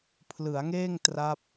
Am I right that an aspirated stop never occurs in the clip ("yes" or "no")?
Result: no